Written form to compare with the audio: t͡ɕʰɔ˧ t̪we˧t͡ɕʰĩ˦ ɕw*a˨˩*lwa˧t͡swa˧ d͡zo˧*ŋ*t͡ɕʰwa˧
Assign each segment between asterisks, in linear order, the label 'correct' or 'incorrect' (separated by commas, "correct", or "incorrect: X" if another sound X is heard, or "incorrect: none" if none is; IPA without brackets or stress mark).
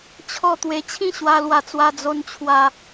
incorrect: a˧, incorrect: n